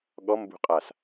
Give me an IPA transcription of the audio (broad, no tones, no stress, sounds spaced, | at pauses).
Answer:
ɠ ɔ m b ṳ qʼ a s